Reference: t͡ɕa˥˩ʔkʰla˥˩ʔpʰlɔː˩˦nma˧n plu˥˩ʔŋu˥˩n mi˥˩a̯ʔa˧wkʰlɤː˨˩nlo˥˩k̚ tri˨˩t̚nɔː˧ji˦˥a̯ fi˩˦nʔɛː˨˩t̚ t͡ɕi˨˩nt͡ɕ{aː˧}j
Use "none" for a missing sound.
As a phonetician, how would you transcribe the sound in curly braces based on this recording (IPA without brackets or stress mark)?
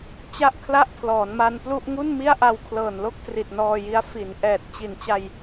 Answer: a˧